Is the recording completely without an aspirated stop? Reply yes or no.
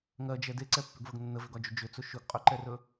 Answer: yes